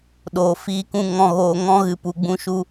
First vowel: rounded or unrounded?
rounded